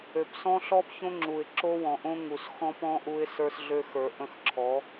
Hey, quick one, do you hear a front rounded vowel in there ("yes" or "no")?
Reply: yes